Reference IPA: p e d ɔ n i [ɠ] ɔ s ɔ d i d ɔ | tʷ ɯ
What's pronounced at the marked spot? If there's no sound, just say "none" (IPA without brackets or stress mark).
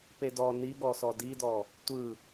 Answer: ɠ